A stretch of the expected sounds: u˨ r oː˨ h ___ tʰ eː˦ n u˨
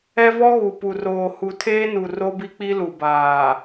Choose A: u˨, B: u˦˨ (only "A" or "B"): A